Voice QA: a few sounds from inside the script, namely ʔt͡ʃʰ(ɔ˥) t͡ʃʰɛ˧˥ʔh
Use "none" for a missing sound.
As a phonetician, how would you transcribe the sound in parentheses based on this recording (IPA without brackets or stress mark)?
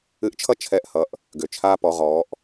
ʌ˥